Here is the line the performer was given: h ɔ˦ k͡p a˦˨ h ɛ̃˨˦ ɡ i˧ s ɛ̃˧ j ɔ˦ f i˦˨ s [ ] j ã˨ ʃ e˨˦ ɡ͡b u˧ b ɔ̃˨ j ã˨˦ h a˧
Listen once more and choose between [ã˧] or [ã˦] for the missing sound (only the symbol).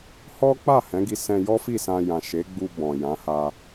ã˧